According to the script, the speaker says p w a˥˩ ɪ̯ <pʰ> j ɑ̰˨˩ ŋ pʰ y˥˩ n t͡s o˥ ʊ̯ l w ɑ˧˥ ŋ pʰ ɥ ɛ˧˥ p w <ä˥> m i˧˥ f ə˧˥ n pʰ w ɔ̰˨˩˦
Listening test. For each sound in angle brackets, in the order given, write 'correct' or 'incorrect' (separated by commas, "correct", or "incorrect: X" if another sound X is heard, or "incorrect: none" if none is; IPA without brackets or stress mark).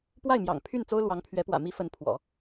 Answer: incorrect: m, incorrect: ä̰˨˩